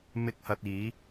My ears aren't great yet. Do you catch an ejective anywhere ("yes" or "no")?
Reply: no